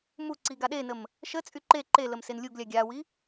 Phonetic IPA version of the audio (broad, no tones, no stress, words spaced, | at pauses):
mu ǀiɡaɗenəm | ʃə t͡sʼyǃe ǃeləm senlʲuɡlʲa ɡʲawi